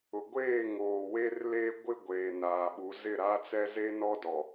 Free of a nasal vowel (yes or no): yes